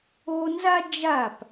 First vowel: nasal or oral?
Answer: oral